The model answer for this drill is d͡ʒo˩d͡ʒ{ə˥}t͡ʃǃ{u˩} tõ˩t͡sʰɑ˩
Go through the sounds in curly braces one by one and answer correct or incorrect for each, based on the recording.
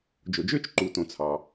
incorrect: ø˥, correct

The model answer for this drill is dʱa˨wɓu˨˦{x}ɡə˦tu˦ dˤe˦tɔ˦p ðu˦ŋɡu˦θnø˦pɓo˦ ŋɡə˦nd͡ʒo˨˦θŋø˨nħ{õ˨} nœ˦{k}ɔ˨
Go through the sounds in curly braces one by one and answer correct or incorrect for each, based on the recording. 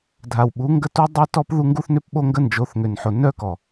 incorrect: ŋ, incorrect: o˨, correct

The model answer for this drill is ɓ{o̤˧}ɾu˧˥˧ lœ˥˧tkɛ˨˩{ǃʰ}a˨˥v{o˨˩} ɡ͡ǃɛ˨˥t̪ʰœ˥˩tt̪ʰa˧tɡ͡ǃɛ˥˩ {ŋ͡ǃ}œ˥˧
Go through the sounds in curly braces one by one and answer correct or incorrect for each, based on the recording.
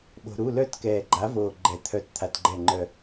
correct, incorrect: ɡ͡ǃ, correct, correct

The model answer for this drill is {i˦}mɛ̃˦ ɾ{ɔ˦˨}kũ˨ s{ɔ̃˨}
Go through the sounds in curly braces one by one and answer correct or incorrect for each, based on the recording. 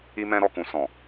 correct, correct, correct

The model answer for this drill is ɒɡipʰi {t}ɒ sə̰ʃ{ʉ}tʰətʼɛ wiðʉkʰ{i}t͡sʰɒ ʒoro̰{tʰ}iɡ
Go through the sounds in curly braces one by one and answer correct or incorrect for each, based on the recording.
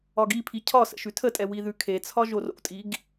incorrect: cʰ, correct, incorrect: e, incorrect: tʼ

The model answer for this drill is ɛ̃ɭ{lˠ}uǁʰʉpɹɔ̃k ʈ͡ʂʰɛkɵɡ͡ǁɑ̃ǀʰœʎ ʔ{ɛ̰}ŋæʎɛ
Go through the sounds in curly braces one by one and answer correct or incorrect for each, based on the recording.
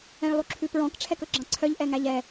correct, incorrect: ɛ

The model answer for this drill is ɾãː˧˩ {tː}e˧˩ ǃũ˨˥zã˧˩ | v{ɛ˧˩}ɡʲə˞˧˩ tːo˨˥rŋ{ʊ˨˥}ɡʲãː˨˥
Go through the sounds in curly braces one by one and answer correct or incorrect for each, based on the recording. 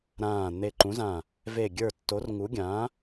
incorrect: n̪, incorrect: e˧˩, incorrect: u˨˥

